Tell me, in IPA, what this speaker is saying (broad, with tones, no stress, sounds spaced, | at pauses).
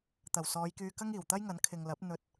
t̪ ɐ˨˩ w s ɔː˨˧ j k yː˧ k ɐ˥ ŋ iː˨˩ w t̪ ɐ˥ j ŋ ɐ˨˥ n kʰ ɪ˨ ŋ l ɐ˨˥ p̚ n̪ ɵ˧ t̚